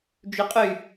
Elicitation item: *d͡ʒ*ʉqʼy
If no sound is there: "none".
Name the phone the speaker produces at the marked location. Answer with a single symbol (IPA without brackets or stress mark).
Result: d͡ʒ